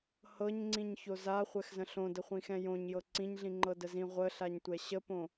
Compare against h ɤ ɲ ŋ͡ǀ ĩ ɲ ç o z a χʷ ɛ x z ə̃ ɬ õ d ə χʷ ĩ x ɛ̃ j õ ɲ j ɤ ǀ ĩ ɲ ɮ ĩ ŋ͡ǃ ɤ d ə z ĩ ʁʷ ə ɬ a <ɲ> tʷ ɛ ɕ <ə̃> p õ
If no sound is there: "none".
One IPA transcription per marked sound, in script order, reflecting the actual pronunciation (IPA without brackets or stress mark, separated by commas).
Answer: ɲ, ə